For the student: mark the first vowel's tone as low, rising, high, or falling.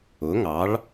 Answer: rising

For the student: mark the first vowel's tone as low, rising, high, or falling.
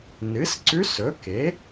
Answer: rising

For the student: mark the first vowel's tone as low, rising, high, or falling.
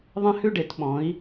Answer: high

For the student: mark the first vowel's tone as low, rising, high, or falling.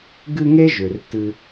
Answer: high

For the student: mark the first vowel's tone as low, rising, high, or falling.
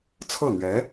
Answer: falling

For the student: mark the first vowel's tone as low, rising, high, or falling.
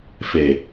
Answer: low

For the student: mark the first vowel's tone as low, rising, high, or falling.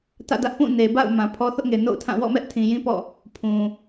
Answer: falling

